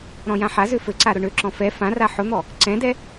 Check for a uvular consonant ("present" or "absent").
absent